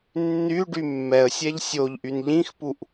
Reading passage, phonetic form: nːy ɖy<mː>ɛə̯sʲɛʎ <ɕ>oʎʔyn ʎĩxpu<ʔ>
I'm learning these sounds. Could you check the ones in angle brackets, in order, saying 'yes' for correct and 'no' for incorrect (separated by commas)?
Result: yes, no, yes